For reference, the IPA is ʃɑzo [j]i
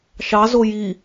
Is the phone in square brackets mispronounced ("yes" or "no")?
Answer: no